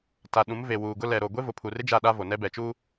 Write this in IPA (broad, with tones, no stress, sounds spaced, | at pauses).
t a˨ ɗ ũ˨˦ m v e˨ w uː˨ ɡ ʊ˦ l ɛ˨ ɾ o˨ ɡʷ e˦ v ʊ˨ pʰ u˨ r ɪ˦ d͡ʒ a˦˨ ɗ a˦ v o˨ n ɛ˦ b ɛ˨ t͡ʃ uː˦